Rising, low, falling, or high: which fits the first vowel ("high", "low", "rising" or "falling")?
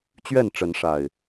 falling